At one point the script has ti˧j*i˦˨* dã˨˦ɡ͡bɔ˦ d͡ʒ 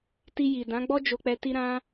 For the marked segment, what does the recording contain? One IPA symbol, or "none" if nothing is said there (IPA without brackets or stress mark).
i˨